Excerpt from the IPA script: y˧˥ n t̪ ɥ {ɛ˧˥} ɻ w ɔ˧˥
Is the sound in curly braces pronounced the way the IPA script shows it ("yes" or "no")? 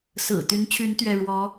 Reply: no